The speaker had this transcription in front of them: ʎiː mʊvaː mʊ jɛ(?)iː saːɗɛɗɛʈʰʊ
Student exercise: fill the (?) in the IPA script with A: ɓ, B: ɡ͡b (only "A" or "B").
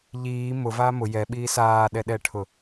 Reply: A